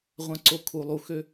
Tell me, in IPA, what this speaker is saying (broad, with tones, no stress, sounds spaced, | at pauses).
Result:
ʁʷ ã˨ ǀ o˨ kʰ u˩ lˠ u˩ x ø˨